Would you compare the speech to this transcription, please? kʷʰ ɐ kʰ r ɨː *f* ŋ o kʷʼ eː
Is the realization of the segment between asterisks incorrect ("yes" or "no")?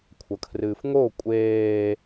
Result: no